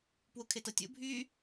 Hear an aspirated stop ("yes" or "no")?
yes